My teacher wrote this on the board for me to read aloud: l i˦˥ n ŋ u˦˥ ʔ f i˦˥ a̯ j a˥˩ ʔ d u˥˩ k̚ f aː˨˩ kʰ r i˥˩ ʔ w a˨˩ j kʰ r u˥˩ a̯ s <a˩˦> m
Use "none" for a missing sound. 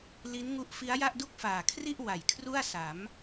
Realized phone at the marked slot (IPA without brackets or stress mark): a˩˦